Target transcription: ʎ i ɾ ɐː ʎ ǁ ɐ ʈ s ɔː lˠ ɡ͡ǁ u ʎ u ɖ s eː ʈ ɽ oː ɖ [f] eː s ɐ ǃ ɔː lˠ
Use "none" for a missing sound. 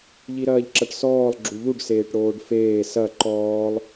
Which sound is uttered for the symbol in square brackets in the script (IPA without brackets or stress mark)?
f